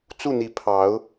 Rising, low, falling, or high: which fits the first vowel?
falling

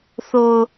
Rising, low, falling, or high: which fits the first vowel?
low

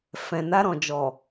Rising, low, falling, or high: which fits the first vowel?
low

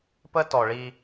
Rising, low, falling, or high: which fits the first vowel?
high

